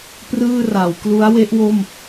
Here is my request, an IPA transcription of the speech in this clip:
p r ɯː˥˩ r a˩˦ w k l u˦˥ a̯ w e˦˥ ʔ w o˥˩ m

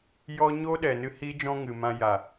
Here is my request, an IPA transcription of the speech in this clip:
j ɔ˦ ɲ oː˦ ɗ ɛ˨ n ɨ˧ h iː˦ d͡ʒ ɔ̃˦ ŋ ɨ˨ m ã˧ j a˨

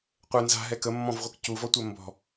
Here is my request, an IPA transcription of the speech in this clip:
qʷ ɛ n z a̤ ɦ ɛ k ə mː ɔ̃ v ʁʷ ɯ k c u v ɔ tʷ ɜ m b ɔ̤

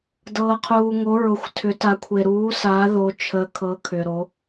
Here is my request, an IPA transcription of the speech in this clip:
d ɤː˩ qʰ uː˩ ŋ o˩˧ ɹ ʊ˩ xʷ tʰ ʏ˩˧ t a˩˧ kʷʰ e˩ ɾ uː˩˧ s a˩˧ ð o˩˧ t͡ʃʰ ə˩˧ kʰ ɤ˩˧ kʰ ʏ˩ ɾ o˩˧

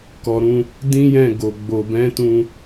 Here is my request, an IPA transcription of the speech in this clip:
k ɔ˨ ɾ ũ˧ | d ĩ˦ j ɛ̃˦˨ ɡ o˨ ɡ͡b o˨ b ɛ̃˨˦ t ũ˧

